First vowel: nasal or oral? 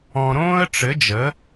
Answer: nasal